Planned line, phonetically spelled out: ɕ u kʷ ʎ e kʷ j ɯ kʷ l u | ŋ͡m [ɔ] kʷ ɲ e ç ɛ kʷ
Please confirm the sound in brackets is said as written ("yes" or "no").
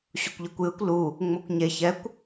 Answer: no